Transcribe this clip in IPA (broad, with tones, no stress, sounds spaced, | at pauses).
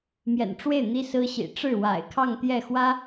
m j ɛ̰˨˩ n ʈ͡ʂ w e˥˩ ɪ̯ n̪ i˥ s ɹ̩˥ ɕ ḭ˨˩ ʈ͡ʂ ɻ̩˥˩ w a̰˨˩ ɪ̯ kʰ ɑ˥˧ ŋ t̪ j ɛ˥˩ x w ä˥